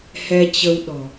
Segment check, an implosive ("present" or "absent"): present